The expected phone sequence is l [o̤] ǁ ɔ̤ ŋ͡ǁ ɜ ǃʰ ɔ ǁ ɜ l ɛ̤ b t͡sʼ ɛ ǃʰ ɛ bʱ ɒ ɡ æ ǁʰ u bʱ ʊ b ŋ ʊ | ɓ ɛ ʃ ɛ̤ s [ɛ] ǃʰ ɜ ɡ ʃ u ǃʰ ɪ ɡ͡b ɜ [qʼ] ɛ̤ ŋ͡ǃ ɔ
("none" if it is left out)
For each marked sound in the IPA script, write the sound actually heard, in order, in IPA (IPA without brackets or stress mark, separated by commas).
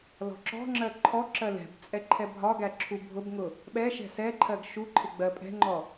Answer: ɔ̤, ɛ, pʼ